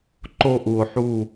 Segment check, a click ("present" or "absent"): present